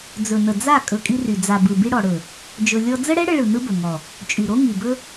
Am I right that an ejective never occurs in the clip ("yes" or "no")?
no